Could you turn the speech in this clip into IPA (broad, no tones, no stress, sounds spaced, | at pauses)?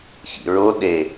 ç ḭ ɹ o ɗ e